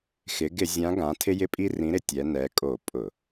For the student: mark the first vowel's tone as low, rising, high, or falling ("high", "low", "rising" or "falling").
rising